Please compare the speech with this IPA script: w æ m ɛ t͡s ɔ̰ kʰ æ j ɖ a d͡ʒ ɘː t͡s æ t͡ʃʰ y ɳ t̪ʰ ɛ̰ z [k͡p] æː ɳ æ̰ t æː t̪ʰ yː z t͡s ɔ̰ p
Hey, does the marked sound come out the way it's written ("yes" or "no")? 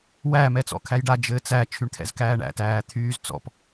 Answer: no